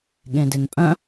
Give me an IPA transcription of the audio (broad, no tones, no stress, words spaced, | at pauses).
ɠẽdenpʼœ̃